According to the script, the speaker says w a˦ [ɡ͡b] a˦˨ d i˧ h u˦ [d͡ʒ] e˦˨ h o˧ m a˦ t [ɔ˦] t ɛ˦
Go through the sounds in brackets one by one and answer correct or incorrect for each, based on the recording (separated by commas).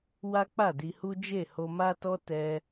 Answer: incorrect, correct, correct